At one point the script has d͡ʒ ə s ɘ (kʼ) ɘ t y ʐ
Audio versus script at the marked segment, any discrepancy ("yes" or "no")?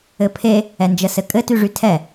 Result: no